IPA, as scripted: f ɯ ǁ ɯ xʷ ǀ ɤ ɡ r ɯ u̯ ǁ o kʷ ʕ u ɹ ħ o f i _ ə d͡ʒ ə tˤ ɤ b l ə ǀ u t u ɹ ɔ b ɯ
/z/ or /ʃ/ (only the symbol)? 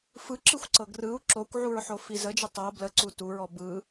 z